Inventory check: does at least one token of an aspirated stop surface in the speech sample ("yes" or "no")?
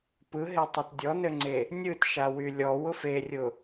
no